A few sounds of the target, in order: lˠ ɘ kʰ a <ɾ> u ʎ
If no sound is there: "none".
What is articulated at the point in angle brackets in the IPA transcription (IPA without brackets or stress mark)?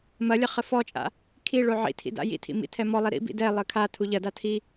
tʰ